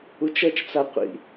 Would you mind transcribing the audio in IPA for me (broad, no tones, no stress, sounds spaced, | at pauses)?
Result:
u t͡ʃ ʌ t͡ʃ t͡s a qʷ ḭ